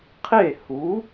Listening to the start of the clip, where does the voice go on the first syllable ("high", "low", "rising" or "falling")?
falling